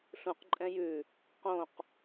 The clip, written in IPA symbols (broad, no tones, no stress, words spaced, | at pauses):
ɬũqǃʼɛ̃ jʉ | qõq